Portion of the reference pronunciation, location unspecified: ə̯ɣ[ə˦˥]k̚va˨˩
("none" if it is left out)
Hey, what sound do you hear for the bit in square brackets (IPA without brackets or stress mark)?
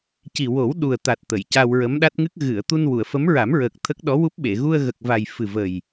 ə˨˩